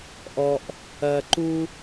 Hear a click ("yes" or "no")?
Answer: yes